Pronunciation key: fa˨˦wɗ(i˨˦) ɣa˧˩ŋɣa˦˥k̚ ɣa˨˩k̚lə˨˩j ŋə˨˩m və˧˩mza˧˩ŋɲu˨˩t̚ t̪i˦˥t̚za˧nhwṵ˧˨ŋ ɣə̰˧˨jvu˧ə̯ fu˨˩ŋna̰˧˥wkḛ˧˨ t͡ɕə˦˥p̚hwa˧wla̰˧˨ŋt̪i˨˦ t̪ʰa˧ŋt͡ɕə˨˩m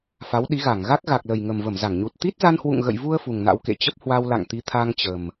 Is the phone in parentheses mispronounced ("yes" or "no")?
no